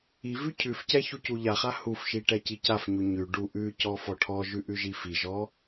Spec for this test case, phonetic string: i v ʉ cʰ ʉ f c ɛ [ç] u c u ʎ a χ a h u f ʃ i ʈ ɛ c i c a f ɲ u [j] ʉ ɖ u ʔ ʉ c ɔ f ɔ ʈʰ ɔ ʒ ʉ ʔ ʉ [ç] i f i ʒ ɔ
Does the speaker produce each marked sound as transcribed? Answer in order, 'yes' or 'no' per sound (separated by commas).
yes, no, no